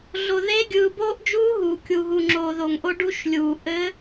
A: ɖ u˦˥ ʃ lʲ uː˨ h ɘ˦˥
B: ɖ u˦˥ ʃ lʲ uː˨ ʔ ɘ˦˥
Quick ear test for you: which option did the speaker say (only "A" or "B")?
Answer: B